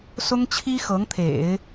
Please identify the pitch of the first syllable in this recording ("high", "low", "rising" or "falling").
high